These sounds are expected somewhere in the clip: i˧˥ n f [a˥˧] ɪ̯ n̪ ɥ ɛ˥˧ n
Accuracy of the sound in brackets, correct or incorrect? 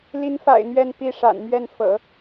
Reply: incorrect